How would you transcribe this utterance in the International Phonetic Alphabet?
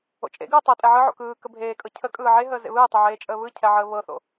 o̰ t͡ʃʼ ḛ ɡ ɯː tˤ ɤ tʼ ɛ ʕ ɯ ʕ o̰ k ɯː k ə bʱ eː kʼ ɤ cʰ ə kʼ ɯː ʕ e ɦ əː z ḛ β ɯː tˤ ɤ ʕ eː t͡ʃʼ əː β ɯ cʰ ɛ ʕ əː β ɤ θ o̰

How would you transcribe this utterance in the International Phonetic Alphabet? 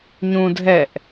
ɲ ũ dʱ ɛ ʔ

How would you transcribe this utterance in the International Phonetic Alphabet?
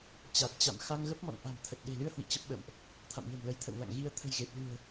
t͡ɕ a˨˩ t̚ t͡ɕ a̰˧˨ m x a˧ ŋ ɣ ə˦˥ p̚ m ɔ̰˧˨ n ʔ a̤˨˩ m t̪ʰ ə˨˩ t̚ ɗ e̤˨˩ l ɨ˧ ə̯ h w ḭ˧˨ t͡ɕ ə˦˥ p̚ ɓ ə̰˧˨ m ʔ | t̪ʰ a̰˧˨ m ɲ ə̤˨˩ m l ə˨˦ j t̪ʰ ə̰˧˨ w l a̰˧˨ ŋ ɣ i˧ ə̯ t̪ʰ ə̤˨˩ j ɣ e˨˩ p̚ l ɨ̤˨˩ ə̯

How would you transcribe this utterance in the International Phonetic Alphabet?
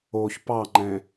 o ç p ɑ ŋ͡ǃ ɛ̃

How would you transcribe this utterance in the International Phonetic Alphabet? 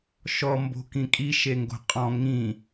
ʃ ɔ m b o̤ k ĩ kʼ i ʃ e ŋ ɡ o̤ qʼ ɔ̃ ŋ ĩ

